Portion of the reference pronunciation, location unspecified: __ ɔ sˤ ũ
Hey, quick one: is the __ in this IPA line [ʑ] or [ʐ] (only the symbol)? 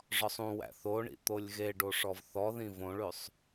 ʐ